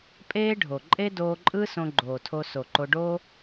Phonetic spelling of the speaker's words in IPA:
pʼ eː˦ ɖʱ o˨ ǃʼ e˦ d oː˧ ǃʼ ɯ˦ s õ˧ ɡ͡ǃ oː˨ tʰ o˧ s o˨ ǃ o˧ ɖ oː˦

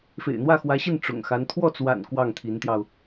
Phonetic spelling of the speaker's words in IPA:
f ḛ˨˩ ɪ̯ n̪ w ä˥˩ x w ä˧˥ ɕ i˥˩ n ʈ͡ʂ ʊ̰˨˩ ŋ x a˧˥ n t̪ʰ w ɔ˥˩ t͡s w a̰˨˩ n k w ɑ˥˩ ŋ t̪ʰ i˧˥ n t̪ j ɑ˧ ʊ̯

